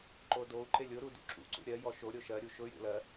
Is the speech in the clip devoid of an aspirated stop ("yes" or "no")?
yes